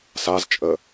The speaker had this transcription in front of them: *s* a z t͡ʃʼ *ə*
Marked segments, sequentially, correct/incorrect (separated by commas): correct, correct